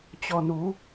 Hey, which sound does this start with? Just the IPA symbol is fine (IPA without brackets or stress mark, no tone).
t͡ɕ